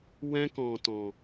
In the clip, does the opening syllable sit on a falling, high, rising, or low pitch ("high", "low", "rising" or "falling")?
high